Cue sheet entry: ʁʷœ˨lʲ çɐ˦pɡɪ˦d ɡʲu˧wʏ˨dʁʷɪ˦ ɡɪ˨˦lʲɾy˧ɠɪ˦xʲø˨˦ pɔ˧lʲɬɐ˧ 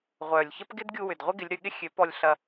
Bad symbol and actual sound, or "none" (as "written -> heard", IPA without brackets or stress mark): none